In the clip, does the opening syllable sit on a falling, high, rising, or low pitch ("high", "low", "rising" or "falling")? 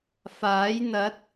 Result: rising